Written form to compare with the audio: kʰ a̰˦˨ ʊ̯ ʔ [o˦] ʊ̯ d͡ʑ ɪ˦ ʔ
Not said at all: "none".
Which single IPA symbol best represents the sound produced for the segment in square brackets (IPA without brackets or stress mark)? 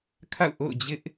o̰˦˨